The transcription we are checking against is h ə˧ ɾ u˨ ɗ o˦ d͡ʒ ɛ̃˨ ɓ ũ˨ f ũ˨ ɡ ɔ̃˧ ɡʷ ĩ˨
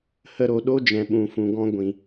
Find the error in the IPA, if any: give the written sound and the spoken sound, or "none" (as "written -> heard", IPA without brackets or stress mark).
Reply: u˨ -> o˨